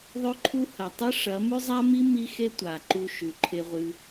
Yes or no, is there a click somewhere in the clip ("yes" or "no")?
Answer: yes